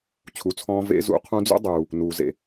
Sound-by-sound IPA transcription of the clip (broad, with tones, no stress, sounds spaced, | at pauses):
t͡ɕʰ u˩˧ t͡sʰ ɔ̃ː˧ v ḛ˧˥ z ṵ˧˥ qʰ ũ˧˥ d͡z ṵ˥ dˤ uː˩ | n uː˩ z ḛ˩